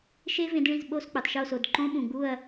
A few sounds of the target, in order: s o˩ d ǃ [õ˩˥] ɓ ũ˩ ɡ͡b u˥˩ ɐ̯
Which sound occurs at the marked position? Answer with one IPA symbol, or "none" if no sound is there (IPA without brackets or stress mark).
õ˥